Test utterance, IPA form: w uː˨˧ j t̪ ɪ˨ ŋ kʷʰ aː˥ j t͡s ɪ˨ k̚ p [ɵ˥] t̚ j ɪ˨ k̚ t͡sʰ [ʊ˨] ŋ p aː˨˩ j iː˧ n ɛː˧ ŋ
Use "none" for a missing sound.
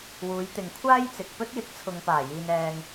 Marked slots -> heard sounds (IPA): ɵ˥, ʊ˨

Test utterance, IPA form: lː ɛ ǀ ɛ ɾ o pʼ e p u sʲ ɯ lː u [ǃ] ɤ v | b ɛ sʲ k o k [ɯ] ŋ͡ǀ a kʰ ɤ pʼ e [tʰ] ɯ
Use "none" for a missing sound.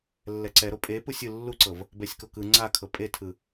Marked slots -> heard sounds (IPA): ǀ, ɯ, tʰ

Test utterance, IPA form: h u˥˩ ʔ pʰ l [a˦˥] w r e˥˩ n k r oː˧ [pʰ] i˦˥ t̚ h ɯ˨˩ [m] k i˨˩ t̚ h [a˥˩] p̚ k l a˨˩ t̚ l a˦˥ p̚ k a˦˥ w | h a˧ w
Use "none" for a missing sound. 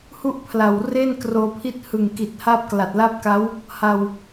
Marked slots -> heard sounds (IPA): a˨˩, pʰ, ŋ, a˦˥

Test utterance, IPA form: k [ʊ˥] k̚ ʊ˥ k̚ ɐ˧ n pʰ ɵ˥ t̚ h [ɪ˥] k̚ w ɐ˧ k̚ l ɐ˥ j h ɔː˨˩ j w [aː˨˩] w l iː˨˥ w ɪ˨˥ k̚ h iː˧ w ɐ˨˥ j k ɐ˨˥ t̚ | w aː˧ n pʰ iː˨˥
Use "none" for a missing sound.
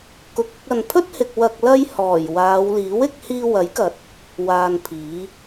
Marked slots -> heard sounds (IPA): ʊ˧, ɪ˨, aː˨˧

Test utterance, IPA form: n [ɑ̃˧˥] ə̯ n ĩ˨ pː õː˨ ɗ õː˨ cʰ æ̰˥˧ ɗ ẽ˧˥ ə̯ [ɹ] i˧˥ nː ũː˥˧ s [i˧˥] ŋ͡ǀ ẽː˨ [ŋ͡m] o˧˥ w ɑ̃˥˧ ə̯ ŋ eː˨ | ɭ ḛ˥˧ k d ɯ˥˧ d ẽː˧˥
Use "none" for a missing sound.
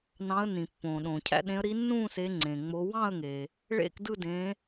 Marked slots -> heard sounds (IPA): ɑ̃˧˥, ɾ, e˧˥, ŋ͡m

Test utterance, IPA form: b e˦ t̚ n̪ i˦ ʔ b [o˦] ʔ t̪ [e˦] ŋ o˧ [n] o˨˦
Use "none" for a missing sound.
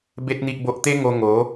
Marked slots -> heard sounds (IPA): o˦, e˦, ŋ

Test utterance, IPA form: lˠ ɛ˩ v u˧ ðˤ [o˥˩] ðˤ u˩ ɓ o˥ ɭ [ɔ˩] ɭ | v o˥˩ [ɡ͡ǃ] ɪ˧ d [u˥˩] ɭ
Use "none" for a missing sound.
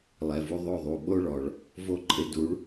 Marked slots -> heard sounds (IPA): o˥˩, ɔ˩, ǃʼ, u˩˥

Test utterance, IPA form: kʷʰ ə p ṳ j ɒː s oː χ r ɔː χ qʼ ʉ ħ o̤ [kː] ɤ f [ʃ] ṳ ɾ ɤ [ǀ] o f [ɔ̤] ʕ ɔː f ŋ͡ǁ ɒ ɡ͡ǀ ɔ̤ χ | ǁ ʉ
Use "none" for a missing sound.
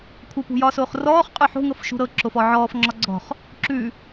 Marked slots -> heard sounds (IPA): ŋ, ʃ, ǁ, ɔ

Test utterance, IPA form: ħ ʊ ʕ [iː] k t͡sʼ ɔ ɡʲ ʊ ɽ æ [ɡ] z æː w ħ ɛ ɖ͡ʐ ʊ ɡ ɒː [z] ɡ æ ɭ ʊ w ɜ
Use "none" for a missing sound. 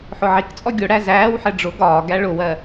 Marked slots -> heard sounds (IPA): i, none, none

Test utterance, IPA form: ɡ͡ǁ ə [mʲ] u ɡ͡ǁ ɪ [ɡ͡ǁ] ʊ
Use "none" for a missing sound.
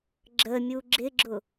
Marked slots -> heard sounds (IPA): mʲ, ɡ͡ǁ

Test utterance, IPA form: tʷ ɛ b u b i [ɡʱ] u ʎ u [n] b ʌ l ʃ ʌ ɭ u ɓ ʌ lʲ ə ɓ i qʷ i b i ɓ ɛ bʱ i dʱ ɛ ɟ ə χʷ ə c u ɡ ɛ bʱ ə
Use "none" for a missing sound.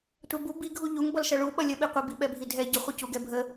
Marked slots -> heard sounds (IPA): ɡʱ, ŋ

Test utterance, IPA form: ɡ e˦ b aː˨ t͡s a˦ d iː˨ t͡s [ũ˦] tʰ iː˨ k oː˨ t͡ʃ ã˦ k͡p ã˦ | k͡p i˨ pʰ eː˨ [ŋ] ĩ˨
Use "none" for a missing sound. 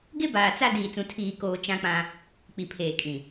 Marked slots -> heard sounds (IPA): ũ˨, kʼ

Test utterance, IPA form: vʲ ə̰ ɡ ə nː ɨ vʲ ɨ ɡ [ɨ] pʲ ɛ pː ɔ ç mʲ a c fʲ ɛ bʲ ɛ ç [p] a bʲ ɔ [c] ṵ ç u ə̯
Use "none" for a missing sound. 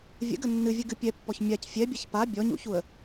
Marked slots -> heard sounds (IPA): ɨ, p, ɲ

